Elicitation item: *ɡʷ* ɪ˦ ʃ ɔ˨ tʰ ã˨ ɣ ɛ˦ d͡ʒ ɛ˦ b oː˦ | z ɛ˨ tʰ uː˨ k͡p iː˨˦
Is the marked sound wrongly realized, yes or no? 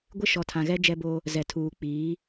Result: no